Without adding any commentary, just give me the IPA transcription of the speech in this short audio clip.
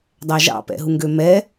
dˤ æ ʒ ɑ̰ p ɛ̰ ɦ u ŋ ɡ ø m ɛ

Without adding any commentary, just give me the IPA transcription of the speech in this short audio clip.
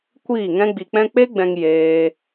kʷ iː˦˨ ŋ ɛ̃˦ ɡ͡b i˧ k͡p ɛ̃˦ k͡p e˦ ɡ͡b ɛ̃˧ ŋ j eː˦

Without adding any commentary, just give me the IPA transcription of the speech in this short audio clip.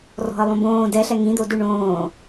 r ɔ̤ ə̯ lˠ õ b õː d ɛ ɬ ɛ ŋ ĩ d̪ o d ʉ ɳ õː

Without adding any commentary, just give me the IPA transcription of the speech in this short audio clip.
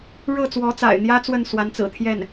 ɻ ɤ˥˩ t͡s w ɔ˧˥ t͡s a̰˨˩ ɪ̯ n̪ j ä˥ t͡s w ə˥˩ n s w a˧˥ n t͡s ɹ̩˨˩ t̪ʰ j ɛ˥˩ n

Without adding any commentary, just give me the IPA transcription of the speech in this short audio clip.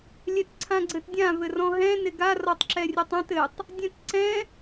lʲ ɛ t ǀʰ ã ɡ͡ǀ ɘ t dʲ ã v ɘ r ɔ̃ ɦ ɛ̃ n ɪ ɡ a r ɔ tˤ ǁ ɛ rʲ ɘ tˤ ã t ɘ tˤ | dʲ ɛ̃ t ǀ ɛ̃

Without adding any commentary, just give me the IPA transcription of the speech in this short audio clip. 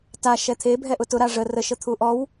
t a ʃ ɛ t̪ʰ e bʱ ɛ ʔ ʊ t ʊ ɾ a ʐ ə r ə ʃ ə t̪ʰ u ʔ ɔ w

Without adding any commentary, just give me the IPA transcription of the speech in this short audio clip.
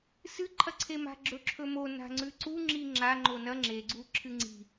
s ɨ ǃʰ ɐ ǀʰ e m a̤ ɡ͡ǁ ɵ ǁʰ ɵ m o n a̤ ŋ͡ǀ ʉ ǀ u ŋ͡ǁ i ŋ͡ǁ a ŋ͡ǃ o n ɐ ŋ͡ǁ e ɡ͡ǀ u ǁʰ ɨ ŋ͡ǀ i̤

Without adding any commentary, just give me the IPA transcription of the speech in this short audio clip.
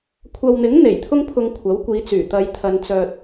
kʷʰ ɐ˨ w n̪ ɪ˨˥ ŋ n̪ e˨˩ j t̪ʰ ʊ˥ ŋ pʰ ʊ˧ ŋ kʷʰ ɐ˨˥ w kʷ iː˨˧ t͡s yː˨˩ t̪ ɐ˨˧ j t̪ʰ ɐ˨˧ n t͡s œː˧ t̚

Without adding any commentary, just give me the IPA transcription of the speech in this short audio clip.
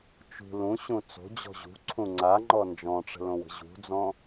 t͡ʃ ṳ l ũ ɕ ũ t͡s o̤ d͡ʑ ɔ̤ ʑ ṳ ǀʰ ũ ŋ͡ǀ a ŋ͡ǃ ɔ n d͡ʒ ɔ̃ ʈ͡ʂ ə̤ l õ w ə̤ ʑ ṳ d͡z ɔ̃

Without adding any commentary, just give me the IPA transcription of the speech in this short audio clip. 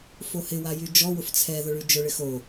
f o h ɪ w a j y d͡ʒ ɔ w ʊ f t͡sʰ ɛ ð ʊ ɭ y d͡ʒ ʊ ɭ ɪ x o

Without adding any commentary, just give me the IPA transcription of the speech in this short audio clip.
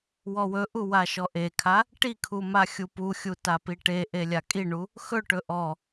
w ɔ w ɵ ʔ u w a ʃ ɔ ʔ e kʰ a | ʈ i kʰ u m a xʲ u p u xʲ u t a p i ʈ e ʔ e lʲ a kʼ i ɳ u | x ɵ ʈ ɵ ʔ ɔ

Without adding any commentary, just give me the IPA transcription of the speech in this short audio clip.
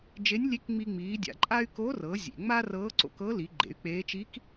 d͡ʒ e˧˥ nʲ lʲ e˧˥ k ŋ͡m i˧ ŋ͡m iː˩˧ dʲ a̰˩˧ ǃʼ a˥ y̯ k o˧˥ r ɤ˩˧ zʲ ḛ˩ ŋ͡m a˥ r ɤː˧˥ ǀ o̰˧ k ɤ˧˥ l i˩˧ ɡ͡ǃ ḛ˩˧ y̯ k͡p eː˧˥ t͡ʃ i˧˥ k

